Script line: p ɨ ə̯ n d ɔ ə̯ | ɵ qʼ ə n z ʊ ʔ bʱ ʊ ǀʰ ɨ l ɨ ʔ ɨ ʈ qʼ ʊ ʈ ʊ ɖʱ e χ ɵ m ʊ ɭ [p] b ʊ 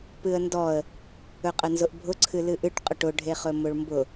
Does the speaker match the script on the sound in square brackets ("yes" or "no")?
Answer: no